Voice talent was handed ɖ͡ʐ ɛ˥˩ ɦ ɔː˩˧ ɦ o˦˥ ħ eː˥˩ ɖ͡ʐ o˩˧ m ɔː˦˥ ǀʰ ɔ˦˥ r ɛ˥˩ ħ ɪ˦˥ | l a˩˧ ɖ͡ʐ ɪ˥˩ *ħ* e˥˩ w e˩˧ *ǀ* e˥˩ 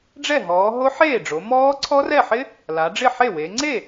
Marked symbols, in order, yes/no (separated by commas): yes, no